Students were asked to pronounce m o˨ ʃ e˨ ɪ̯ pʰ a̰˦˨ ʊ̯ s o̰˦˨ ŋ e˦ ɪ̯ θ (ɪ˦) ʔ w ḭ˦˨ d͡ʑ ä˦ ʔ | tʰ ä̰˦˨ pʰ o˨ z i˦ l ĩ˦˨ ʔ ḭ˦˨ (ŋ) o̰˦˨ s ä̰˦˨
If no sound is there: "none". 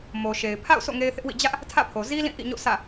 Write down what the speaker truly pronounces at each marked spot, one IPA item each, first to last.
ɪ˦, ɲ

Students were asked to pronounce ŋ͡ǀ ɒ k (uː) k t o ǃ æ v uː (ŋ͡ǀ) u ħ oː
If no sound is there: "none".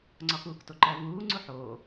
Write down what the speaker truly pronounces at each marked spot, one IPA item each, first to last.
uː, ŋ͡ǀ

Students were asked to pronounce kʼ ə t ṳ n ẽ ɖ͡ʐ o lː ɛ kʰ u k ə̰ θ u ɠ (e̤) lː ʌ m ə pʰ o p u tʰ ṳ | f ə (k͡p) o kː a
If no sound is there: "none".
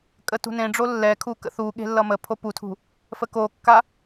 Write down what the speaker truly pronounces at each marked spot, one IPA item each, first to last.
e̤, k

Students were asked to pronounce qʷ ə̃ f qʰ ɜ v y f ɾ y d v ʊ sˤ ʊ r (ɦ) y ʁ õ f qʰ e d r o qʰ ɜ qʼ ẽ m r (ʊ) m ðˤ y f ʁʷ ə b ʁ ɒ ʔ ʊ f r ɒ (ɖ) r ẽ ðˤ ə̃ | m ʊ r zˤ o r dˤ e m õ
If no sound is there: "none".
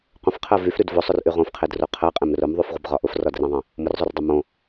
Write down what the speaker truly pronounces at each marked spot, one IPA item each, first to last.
ʔ, ʊ, d

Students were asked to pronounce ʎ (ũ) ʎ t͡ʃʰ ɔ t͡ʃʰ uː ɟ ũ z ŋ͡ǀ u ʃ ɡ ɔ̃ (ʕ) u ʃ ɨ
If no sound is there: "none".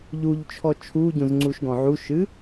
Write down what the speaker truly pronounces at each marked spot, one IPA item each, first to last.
u, ʕ

